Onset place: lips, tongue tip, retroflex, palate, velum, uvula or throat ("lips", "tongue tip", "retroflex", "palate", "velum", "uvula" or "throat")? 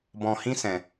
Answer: lips